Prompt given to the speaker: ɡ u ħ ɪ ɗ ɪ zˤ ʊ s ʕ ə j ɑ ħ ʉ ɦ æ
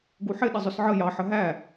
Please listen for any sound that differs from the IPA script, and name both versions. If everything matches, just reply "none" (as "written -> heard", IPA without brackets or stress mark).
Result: ʉ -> ə